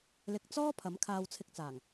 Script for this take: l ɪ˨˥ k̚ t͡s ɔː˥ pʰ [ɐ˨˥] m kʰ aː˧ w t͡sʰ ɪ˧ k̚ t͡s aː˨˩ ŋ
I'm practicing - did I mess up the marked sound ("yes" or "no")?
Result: no